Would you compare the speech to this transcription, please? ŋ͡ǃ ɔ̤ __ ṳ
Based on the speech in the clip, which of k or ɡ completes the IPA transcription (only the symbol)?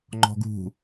ɡ